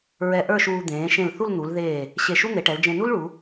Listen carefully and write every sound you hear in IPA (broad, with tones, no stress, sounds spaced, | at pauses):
ɹ ɛ˧ ʔ ə˞˥˧ ʃ uː˧ d̪ ẽː˩˧ ʃ ẽ˧˩ l θ u˥˧ l n̪ u˩˧ l ð eː˧˩ | ɕ e˧˩ ʃ u˥ n̪ e˩˧ ʈ ɛ˩˧ l d͡ʒ ẽ˧ n u˥ l ɭ u˩˧